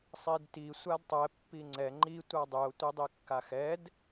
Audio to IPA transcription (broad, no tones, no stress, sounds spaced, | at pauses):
sˤ i d t i sʷ a d tˤ ɛ pː i ŋ͡ǀ ɛ ŋ͡ǃ i tʷ a dˤ y o̯ tʷ i dˤ i kː a x ɛ d